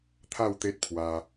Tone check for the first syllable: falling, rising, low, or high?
falling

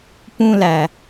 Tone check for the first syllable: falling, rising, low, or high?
high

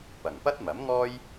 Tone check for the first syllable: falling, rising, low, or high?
low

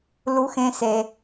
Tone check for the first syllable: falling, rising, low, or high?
high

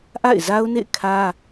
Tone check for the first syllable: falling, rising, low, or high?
falling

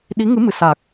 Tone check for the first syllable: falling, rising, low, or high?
rising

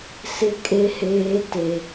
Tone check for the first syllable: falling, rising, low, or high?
high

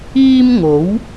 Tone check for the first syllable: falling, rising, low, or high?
high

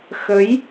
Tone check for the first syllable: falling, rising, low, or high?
rising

